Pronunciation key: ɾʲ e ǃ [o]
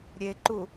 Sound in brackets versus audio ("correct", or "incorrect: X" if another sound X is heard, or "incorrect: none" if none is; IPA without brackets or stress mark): incorrect: u